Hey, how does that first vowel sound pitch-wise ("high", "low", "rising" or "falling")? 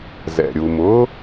low